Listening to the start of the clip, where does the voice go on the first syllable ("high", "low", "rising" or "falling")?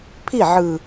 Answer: falling